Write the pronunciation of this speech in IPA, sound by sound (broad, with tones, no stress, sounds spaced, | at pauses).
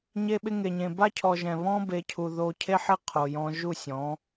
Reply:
ɲ e˧ ɓ ɪ˧ ŋ e˨ ɲ ẽ˨ b a˦ cʰ ɔ˨ ʒ ɛ̃˨ β ɔ̃˦ b e˨˦ cʰ u˨ ð o˧ cʰ e˦ ħ ɪ˦ qʰ o˨ j ɔ̃˧ ʒ u˦˨ sʲ ɔ̃˨˦